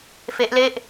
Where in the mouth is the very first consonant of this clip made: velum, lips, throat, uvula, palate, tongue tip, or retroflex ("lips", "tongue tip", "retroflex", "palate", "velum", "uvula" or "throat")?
lips